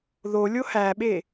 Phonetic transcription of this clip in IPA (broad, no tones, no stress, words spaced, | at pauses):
ðolʲo hæɓe